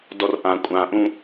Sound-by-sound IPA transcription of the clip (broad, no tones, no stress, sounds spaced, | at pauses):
d ɔ r ʔ ã kʷʼ ã ʔ ũ